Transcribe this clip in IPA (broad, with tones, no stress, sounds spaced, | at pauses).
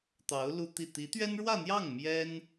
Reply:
t̪ ɑ˧˥ ʊ̯ l u˥ t̪ i˥˩ t̪ i˧˥ t̪ ɥ ɛ˥ n ɻ w ä˥˧ n̪ j ɑ˥˩ ŋ m j ɛ˥ n